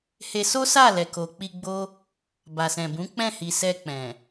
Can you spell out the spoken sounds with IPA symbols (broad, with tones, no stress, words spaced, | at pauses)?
he˧ so˦sa˦˨ lɛ˨ko˨k͡pi˧ ɡ͡bo˦ | ba˨sɛ̃˨bũ˨˦ k͡pɛ̃˦˨hi˨sɛ˧ k͡pɛ̃˨